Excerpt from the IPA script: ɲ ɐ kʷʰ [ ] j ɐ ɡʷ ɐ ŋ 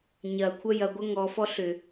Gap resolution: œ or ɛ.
œ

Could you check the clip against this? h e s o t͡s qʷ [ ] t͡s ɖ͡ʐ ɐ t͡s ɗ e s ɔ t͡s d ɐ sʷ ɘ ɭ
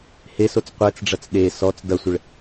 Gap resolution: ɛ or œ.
ɛ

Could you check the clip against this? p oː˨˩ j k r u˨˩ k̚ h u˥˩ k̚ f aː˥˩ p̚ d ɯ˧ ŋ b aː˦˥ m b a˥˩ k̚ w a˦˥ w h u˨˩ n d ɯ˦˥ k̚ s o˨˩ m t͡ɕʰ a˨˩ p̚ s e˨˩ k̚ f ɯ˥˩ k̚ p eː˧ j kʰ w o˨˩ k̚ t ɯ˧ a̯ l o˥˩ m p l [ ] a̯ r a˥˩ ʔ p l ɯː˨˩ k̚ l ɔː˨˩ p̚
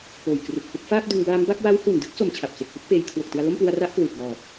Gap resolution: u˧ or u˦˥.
u˧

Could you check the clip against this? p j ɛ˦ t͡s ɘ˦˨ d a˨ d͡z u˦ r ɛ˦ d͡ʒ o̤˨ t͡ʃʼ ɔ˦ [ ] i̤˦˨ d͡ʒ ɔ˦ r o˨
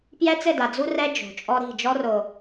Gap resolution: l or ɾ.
ɾ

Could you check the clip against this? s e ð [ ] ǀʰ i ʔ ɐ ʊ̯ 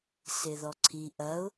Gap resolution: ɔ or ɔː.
ɔ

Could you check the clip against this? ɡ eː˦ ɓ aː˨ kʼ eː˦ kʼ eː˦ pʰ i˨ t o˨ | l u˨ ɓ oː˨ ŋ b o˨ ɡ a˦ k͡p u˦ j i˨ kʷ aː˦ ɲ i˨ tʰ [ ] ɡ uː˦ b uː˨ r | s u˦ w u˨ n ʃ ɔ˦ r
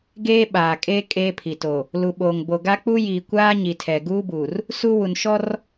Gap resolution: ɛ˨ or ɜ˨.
ɛ˨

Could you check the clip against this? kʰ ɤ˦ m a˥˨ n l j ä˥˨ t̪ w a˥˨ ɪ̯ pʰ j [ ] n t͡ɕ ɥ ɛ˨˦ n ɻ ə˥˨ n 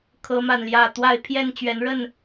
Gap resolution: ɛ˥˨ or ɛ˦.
ɛ˥˨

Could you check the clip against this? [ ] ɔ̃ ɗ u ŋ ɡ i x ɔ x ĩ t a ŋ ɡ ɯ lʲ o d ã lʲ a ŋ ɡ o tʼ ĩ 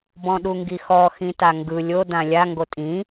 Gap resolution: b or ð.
b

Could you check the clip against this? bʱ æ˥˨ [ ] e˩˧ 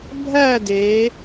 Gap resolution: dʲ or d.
d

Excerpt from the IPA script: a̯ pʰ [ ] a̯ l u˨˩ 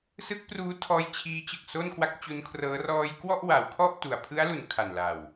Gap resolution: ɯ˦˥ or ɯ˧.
ɯ˦˥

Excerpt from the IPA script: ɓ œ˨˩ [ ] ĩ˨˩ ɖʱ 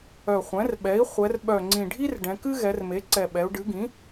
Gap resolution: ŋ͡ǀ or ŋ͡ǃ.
ŋ͡ǀ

